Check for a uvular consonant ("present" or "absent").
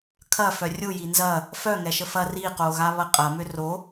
present